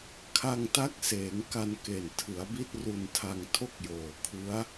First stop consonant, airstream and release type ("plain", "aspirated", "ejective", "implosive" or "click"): aspirated